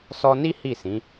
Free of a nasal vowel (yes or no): no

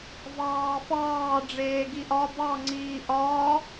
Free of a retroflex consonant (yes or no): no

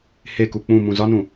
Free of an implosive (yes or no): yes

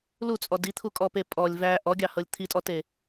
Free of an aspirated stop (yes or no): no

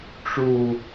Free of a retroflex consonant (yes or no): no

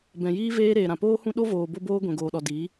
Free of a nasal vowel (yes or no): no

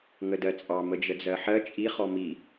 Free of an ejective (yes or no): no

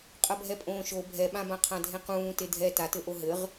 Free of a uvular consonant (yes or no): no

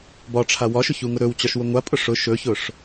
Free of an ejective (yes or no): no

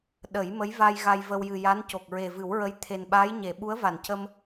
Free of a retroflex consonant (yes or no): yes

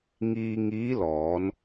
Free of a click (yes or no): yes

